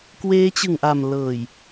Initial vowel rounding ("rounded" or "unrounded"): unrounded